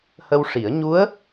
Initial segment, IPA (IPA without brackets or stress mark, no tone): h